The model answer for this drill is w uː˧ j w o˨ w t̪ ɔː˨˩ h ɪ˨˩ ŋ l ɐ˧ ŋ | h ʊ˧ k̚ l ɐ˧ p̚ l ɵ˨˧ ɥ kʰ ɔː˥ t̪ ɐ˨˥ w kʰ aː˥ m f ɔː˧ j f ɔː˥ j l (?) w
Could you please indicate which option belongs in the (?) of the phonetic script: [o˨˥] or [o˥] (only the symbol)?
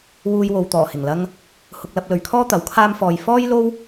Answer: o˥